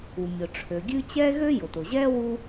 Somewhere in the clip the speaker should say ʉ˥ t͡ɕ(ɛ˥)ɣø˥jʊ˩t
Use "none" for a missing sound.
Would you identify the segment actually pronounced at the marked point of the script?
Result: ɛ˥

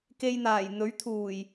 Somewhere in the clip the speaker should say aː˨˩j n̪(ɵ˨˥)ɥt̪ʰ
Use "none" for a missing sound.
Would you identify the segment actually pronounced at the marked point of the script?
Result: ɵ˨˥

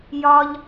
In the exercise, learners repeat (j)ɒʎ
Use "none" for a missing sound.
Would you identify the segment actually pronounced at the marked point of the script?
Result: j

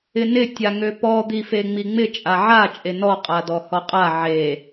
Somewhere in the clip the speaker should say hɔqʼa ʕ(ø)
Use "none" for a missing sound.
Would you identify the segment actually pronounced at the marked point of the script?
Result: e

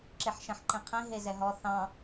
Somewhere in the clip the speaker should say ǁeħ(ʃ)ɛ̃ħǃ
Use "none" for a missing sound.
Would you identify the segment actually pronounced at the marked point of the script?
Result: ʃ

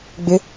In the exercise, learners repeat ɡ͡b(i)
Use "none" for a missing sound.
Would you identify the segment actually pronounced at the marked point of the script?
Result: ɪ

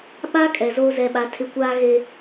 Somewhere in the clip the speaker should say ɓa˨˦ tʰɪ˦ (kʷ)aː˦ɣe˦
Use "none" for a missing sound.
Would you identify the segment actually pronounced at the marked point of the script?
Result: kʷ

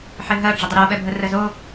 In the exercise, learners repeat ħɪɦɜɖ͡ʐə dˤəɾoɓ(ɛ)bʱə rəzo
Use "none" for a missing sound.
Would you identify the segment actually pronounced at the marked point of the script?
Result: ɛ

